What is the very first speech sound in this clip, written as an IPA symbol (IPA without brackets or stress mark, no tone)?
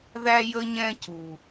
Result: ð